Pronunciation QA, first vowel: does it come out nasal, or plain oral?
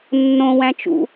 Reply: nasal